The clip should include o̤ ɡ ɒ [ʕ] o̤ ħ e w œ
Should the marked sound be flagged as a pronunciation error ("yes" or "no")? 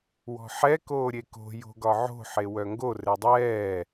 no